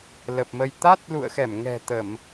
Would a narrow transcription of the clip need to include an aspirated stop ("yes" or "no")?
no